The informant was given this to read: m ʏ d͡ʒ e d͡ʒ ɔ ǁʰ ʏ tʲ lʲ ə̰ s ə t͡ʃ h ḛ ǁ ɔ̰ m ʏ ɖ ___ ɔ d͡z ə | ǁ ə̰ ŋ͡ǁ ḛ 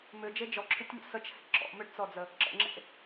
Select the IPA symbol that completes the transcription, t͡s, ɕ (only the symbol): t͡s